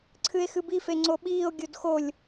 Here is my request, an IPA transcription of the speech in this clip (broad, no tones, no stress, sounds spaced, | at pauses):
ǀʰ ɨ e̯ x ɨ b i f e ŋ͡ǀ o ɓ iː o̯ ɡʲ o d x o lʲ